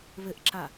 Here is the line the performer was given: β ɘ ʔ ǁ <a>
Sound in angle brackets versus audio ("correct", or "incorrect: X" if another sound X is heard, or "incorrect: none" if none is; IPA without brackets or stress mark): correct